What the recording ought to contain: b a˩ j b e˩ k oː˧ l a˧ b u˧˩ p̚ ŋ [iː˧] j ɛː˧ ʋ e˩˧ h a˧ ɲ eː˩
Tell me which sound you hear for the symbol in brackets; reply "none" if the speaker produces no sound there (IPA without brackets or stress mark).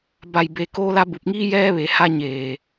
iː˧